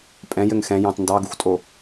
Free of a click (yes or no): yes